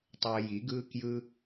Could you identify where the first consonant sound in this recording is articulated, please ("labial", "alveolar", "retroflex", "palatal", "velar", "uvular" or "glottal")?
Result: alveolar